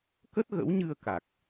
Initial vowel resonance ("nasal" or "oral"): oral